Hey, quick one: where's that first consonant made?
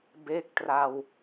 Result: lips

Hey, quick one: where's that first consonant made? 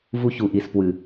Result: lips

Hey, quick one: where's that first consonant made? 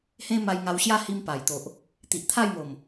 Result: throat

